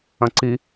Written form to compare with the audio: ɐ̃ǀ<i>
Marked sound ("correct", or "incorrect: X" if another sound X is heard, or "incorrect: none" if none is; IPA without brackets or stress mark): correct